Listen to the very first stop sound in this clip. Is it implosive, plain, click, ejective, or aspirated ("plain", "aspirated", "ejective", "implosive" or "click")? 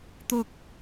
plain